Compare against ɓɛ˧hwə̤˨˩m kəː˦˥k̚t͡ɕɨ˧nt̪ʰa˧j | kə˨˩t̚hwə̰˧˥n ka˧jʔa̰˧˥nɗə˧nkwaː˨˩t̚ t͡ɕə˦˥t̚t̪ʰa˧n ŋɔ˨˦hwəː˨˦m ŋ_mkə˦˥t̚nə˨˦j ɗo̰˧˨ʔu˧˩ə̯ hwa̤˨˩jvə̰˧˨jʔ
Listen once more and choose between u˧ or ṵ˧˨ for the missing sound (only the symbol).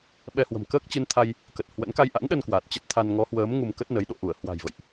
u˧